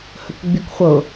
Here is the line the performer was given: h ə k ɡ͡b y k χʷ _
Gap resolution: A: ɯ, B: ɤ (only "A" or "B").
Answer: B